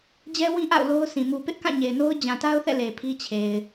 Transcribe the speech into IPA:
d͡ʑ ɛ˦ w ĩ˦ ʔ a̰˦˨ ʊ̯ l o˦ ʊ̯ s ĩ˨ m u˨ p ɪ˦ ʔ k ã˦˨ ɲ e˨ ɪ̯ n o˦ ʊ̯ d͡ʑ ã˨ t a˦ ʊ̯ θ ɛ̰˦˨ l e˨ pʰ i˦ t͡ɕʰ e˨ ɪ̯

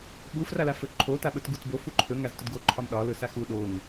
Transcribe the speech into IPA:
ɓ u f r a l a f ɵ ǃʰ o t a ɓ ɵ t ɡ u t b o f u ǃʰ ɵ ŋ a z t ɵ d ɡ o ǃʰ ɒ m ɗ ɒ l ɵ s a x u ɗ o ŋ

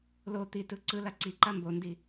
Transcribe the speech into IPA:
l o t̪ i t ɯ ǀ ɯ l a ǀ i ǃ a m b o n d i

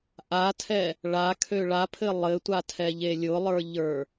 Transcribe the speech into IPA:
ʔ a tʰ ɛ | ɭ a kʰ ø ɭ a pʰ ɘ lˠ ɘ tʷ a tʰ ɛ ʎ e lʲ ʊ lˠ ə˞ ʎ ə˞

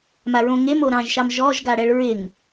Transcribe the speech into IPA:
m a ɹ õ ŋ e m o ɾ ɑ̃ ʒ ʃ ɑ m ʒ ɔ ʒ ɡ a ɽ ɛ ɭ ɹ ɪ ŋ

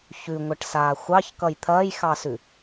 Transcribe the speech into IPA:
ç ʉ ŋʷ ɐ ʈ s aː xʷ ɑ ç k ʌ j t̪ʰ ɐː j x ɑ s ʉ

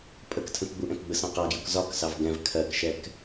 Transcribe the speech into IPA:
pʼ ə k tʰ ə̃ k ɡ͡b u ʔ ɛ̃ k ɡ͡b ə s ɑ̃ q ɑ ɡ j u k z ɒ k s ɑ v ɡ ɛ̃ v kʰ ɜ k ʃ ɛ k

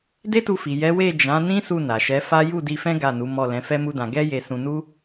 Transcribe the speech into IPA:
d e˦ t u˧ f i˨ j ɛ˨˦ w e˦˨ d͡ʒ ã˨˦ n ĩ˦ s u˦˨ n a˨ ʃ ɛ˨˦ f a˦ j u˦˨ d i˧ f ɛ̃˦ ɡ a˦˨ n u˨˦ m ɔ˦˨ l ɛ̃˨˦ f ɛ˦ m u˦ d ã˧ ɡ ɛ˦ j e˧ s ũ˧ n u˦

